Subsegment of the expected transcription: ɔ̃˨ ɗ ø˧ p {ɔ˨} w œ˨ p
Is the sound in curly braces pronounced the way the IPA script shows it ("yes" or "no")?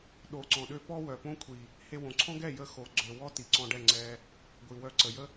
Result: no